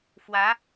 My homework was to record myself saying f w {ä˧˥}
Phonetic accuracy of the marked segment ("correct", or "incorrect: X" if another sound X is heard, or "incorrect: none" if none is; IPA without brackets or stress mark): correct